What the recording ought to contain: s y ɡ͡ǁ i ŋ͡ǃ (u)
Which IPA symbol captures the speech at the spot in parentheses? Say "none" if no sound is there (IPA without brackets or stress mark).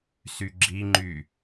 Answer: y